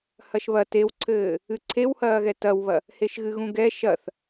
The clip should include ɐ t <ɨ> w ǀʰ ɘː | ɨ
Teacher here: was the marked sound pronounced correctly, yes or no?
no